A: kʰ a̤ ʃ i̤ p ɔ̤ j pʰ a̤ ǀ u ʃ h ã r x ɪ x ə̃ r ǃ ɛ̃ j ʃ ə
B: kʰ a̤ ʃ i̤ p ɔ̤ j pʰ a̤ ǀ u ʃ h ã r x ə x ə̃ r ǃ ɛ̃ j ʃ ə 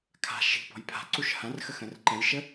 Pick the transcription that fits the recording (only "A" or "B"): B